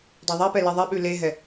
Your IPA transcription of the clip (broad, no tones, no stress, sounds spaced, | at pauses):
dˤ a ðˤ ɛ p ɛ l ɛ ðˤ ɛ ɓ ʉ l e ɦ ɛ